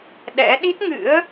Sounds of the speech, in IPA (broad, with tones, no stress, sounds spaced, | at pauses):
ɗ ɛ̰˧˥ ɗ i˦˥ t̚ ŋ ɨ̰˧˥ ə̯